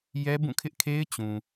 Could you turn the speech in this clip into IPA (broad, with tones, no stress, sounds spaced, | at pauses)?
j ɛ˦ b ũ˦˨ kʰ ɪ˦ ʔ kʰ e˦ ɪ̯ t͡ɕ ũ˨